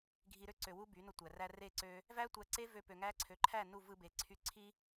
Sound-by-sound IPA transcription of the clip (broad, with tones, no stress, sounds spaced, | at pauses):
ɡʱ i˧ ɾ ø˦ ǀ ø˨ w u˦ b y˨˦ n o˧ tʷ æ˨ r æ˧ r e˦˨ ǀ ø˧ | v æ˦ tʷ æ˧ ǀ e˦ v ø˧ p ø˨ ŋ æ˧ ǀʰ ø˨ ǃʰ æ˦˨ n u˦˨ v ɯ˧ b e˨˦ ǀʰ y˧ ǀʰ i˦